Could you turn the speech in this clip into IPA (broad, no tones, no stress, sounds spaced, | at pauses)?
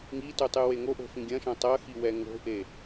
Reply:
ŋ i t u tˤ ɨ w e ŋ o ʔ o̤ f ĩ ɡʲ ɐ̃ ʃ ɐ̃ tˤ ɐ x i w ɛ ŋ o̤ ʔ e